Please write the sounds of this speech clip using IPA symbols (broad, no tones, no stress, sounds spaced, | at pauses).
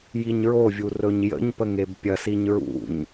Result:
j i ɲ ɹ o vʲ u r ɵ ɲ j ə̰ ɲ p ə ŋ e b pʲ ɐ s i ɲ ɹ ṵ ɲ